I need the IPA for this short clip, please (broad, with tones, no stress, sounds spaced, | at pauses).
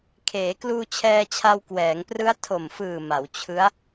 kʰ eː˩˦ k l uː˧ t͡ɕʰ ɛː˧ t͡ɕʰ a˧ w k w ɛː˩˦ ŋ p r ɯ˦˥ a̯ tʰ o˨˩ m f ɯː˨˩ m a˩˦ w t͡ɕʰ ɯ˦˥ a̯